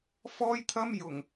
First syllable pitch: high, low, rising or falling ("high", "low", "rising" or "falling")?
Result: high